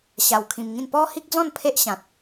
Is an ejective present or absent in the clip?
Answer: absent